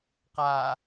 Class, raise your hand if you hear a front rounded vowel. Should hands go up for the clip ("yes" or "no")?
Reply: no